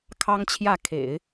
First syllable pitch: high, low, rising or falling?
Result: high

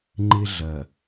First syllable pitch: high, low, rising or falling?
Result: high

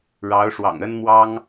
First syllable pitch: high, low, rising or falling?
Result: rising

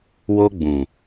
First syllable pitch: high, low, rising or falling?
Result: high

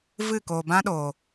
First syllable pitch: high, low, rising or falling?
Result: falling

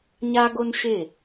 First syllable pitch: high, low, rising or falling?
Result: high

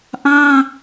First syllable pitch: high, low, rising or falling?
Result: high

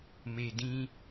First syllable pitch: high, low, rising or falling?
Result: low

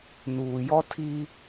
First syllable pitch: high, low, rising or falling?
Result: low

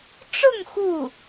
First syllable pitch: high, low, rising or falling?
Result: falling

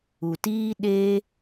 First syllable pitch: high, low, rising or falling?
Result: low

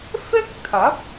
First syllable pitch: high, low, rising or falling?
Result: high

